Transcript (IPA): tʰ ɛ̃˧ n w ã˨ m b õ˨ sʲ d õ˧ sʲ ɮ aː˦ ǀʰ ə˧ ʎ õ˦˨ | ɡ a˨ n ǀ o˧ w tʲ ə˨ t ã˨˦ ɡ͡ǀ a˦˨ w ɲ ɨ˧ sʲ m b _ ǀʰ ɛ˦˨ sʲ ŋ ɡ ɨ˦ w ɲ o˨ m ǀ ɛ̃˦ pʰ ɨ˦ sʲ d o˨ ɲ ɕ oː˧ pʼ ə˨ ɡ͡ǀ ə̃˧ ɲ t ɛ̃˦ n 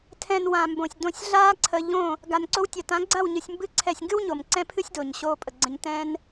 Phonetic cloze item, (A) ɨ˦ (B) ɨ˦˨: A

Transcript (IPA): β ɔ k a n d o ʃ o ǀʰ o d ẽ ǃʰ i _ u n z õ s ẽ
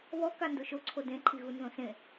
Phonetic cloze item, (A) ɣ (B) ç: A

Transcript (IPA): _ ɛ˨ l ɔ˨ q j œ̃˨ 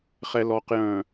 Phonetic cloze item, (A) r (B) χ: B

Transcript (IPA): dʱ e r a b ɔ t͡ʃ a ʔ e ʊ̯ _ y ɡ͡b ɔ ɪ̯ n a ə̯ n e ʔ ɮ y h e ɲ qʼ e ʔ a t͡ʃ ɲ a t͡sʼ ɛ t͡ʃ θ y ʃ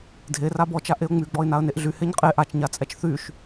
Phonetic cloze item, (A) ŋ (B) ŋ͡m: B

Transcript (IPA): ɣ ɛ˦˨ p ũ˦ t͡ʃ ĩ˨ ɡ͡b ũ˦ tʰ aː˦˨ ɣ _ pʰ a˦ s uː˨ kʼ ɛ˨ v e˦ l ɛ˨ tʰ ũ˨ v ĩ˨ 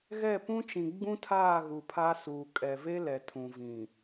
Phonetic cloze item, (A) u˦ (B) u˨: B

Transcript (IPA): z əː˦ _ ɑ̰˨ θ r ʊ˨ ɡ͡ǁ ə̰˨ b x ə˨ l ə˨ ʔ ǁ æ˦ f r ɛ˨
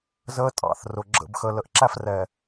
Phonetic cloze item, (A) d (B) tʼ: B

